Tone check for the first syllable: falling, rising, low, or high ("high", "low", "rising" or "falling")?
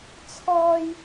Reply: high